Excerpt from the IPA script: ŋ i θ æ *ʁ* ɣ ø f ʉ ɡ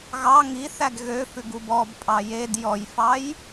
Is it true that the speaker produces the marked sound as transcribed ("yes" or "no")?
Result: no